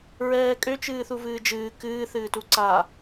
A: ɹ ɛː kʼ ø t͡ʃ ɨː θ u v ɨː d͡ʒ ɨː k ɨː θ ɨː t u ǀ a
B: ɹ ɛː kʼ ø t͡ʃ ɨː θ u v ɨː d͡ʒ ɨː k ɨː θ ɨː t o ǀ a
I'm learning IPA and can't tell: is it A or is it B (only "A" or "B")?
A